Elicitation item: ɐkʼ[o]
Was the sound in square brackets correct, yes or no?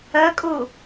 yes